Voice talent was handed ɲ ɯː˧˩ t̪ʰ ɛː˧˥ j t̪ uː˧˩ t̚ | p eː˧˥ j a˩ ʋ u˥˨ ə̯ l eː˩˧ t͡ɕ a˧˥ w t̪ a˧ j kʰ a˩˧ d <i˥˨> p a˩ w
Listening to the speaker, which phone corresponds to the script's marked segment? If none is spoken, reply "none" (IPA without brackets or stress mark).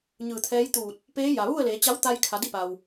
i˥˨